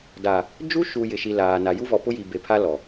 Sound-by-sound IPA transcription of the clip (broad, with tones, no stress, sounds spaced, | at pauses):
d a˨ | d͡ʒ u˦ ʃ u˨ j ɪ˨ ʃ i˨ l aː˨ n a˨ j u˦ v ɔ˨ p ʊ˦ j i˨ b e˨ pʰ a˦ l ɔ˨